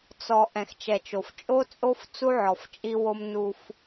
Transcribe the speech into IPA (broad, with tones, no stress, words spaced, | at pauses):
t͡sɔ˨ ʔɛ̃˨xt͡ʃɛ˨t͡ʃo˨f t͡ʃʼo˦t͡sʼo˦f t͡su˦ʕɔ˨ft͡ʃʼi˦wo˦m nu˦f